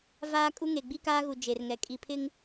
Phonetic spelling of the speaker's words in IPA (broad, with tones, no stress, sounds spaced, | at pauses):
v aː˦ kʼ u˦ ŋ e˨ ɡ͡b i˦ k aː˦ ɣ u˨ d͡ʒ e˨ r ŋ ɛ˨ kʼ i˨ pʰ ɪ˦ ŋ